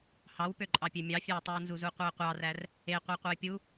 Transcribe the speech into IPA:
h ɑ w p ø ǃʼ ɑ pʲ ø mʲ ɑ fʲ æ ə̯ tˤ u ə̯ n z u z u qʷ e ə̯ qʷ ɑ r æ r | e qʷ æ qʷ ɯ ɪ̯ pʲ u

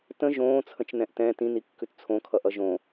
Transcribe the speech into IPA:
t ə̃ ʒ õː t͡sʰ ə̃ t͡ʃ n ɛ̃ ʔ t ɛ̃ t ĩ n i kː ʉ t t͡sʰ õ kʰ ʌ ʔ ʌ ʒ õ

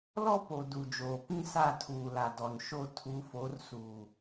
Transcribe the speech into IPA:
l ɔ˦ p o˨ d u˨ d͡ʒ oː˨ p ĩ˦ s a˦˨ tʰ uː˨ l a˨ d ɔ˨ n ʃ o˦˨ tʰ u˨˦ f o˨˦ r s uː˨

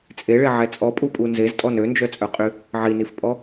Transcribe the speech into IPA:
t͡sʼ e ɭ e ʕ ɛ t͡sʼ ɔ pʼ u pʼ u n z e z tʼ ɔ n ø n d͡ʒ œ t͡sʼ œ qʼ y | ʕ i n i f pʼ ɔ

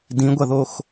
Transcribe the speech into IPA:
d ĩ ɡʷ ɐ ð o x

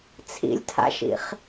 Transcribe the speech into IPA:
t͡sʰ ḭ lʲ tʰ a̰ ʃ ḭ χ

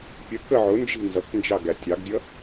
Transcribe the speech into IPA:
pʲ ə k ə ʕ ʊ n d͡ʒ i̤ n z ʌ k n d͡ʒ ɑ ɡ æ tʲ ɑ ɡ dʲ ʌ

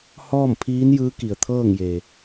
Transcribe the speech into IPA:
h ɔː˥˨ m pʰ iː˧˥ n j ɯː˧˥ k i˩ ə̯ t̪ʰ ɤː˥˨ ŋ j e˩

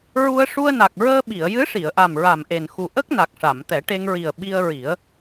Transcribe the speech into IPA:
ɹ u˧ ə̯ ʂ u˧ ə̯ n a˨˩ k̚ ɹ əː˧ ɓ i˨˩˨ ə̯ j ɨ˧˥ ʂ i˨˩˨ ə̯ ʔ a˨˩ m ɹ a˨˩ m ʔ e˨˩ n x u˨˩ ʔ ə˦˥ k̚ n a˨˩ k̚ ʂ a˨˩˨ m t̪ ɛ˨˩˦ ʈ e˧ ŋ ɹ i˨˩ ə̯ ɓ i˧ ə̯ ɹ i˨˩˦ ə̯

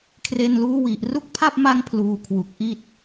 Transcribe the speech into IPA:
kʰ r e˧ n l uː˦˥ w i˨˩ ʔ r u˦˥ k̚ pʰ a˥˩ p̚ m a˦˥ ŋ pʰ l uː˧ kʰ w u˨˩ k̚ ʔ i˥˩ t̚

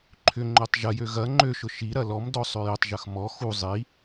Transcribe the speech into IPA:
ǃʰ ʏ ŋ͡ǃ ø tˤ ʒ ɐ j ø ɣ ɐ ŋ͡ǃ ø ʃ ʊ ʃ i ɾ ɐ l ɔ m d ɔ sˤ ø j ʏ tˤ ʒ ɐ x m ɔ x u zˤ i

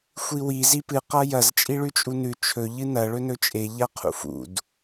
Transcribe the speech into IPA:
xʷ i w i z i p ɨ q a j ɐ z t͡ʃʼ i ɭ ʉ t͡ʃʼ u n ʉ t͡ʃʰ ɵ ʎ ɨ n ɐ ɭ ɵ n ɵ t͡ʃʼ e ʎ a qʰ ṵ f ṵ d

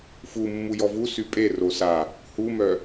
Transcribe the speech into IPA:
f u mː u j ɔ v u s y pʼ e r o s a | h u m œ

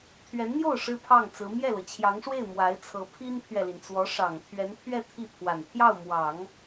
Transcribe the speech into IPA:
t̪ʰ ɥ ɛ˧˥ n n̪ j o˥˩ ʊ̯ ʂ ɻ̩˥ pʰ ɑ˥˩ ŋ t͡s ɹ̩˧˥ m j ɛ˥˩ l ɤ˩ t͡ɕʰ j ɑ˧˥ ŋ ʂ w e˥˩ ɪ̯ m w a˧˥ ɪ̯ t͡sʰ ɤ˧˥ pʰ i˥ n pʰ ɥ ɛ˨ l i˩ n t͡s w ɔ˧˥ ʂ ɑ˨˩ ŋ t̪ʰ ɥ ɛ˧˥ n pʰ ɥ ɛ˥˧ t̪ʰ i˥˩ pʰ w a˨˩ n t̪ʰ j ɑ˥˩ ʊ̯ m w ɑ˨˩˦ ŋ

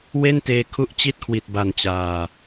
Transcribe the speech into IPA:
w e˥˩ n t eː˧ kʰ u˦˥ ʔ t͡ɕ i˦˥ t̚ kʰ w i˨˩ t̚ b a˨˩ n t͡ɕ aː˨˩

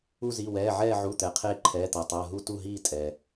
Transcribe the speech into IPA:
u˦˨ z i˩˧˩ w ɛː˩˧˩ ʕ ɛː˦˨ ʕ u˩˧˩ t̪ ɛ˩ qʰ eː˦˨ ǃʰ ɛː˩˧˩ t̪ ɤ˩ tˤ ɤː˩˧˩ ɦ u˦˨ t u˦˨ ɦ iː˦˨ tʼ ɛ˩

